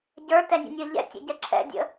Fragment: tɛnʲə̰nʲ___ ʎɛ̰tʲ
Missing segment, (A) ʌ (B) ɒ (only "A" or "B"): A